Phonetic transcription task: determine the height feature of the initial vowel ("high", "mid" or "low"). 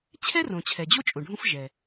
mid